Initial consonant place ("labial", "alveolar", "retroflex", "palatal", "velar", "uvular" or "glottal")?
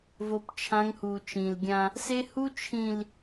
labial